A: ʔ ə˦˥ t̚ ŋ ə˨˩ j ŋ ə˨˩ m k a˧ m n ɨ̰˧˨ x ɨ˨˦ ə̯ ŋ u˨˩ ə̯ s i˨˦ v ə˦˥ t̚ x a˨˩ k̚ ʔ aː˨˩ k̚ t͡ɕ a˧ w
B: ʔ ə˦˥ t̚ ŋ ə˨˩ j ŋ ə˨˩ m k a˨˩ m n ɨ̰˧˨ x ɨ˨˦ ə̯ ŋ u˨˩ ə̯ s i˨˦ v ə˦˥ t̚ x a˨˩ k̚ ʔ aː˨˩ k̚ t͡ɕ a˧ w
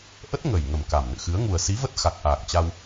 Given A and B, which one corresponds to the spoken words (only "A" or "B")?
B